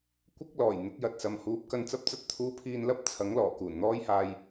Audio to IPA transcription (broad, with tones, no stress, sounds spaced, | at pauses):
kʷ ɪ˥ k̚ l ɔː˨˩ j n̪ ɪ˨˥ k̚ j ɐ˨ t̚ s ɐ˨ m h uː˨˥ p̚ k ɐ˧ n t͡s ɐ˥ p̚ t͡s ɐ˥ t̚ t̪ʰ uː˥ pʰ iː˥ n l ɐ˥ p̚ t͡sʰ ɐ˨˥ ŋ l ɔː˨˩ k uː˨˩ n n̪ ɔː˥ j h aː˧ j